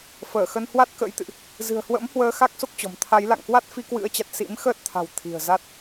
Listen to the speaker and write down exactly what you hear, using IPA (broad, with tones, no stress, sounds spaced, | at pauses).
f əː˧˩ x ə˧ n h w a˦˥ t̚ k ə̰˧˥ j t̪ ɨ̰˧˨ ʔ | z ɨ̤˨˩ ə̯ h w ə̰˧˥ m h w əː˨˦ x a˦˥ k̚ s o˦˥ k̚ t͡ɕ ɔ̤˨˩ m t̪ʰ a˨˦ j l a̰˧˨ ŋ k w a˦˥ t̚ f i˧ k w ɨ̰˧˥ ə̯ t͡ɕ a˨˩ t̚ s ḭ˧˥ m x əː˦˥ t̚ t̪ʰ a̤˨˩ w t̪ʰ i̤˨˩ ə̯ z a˦˥ t̚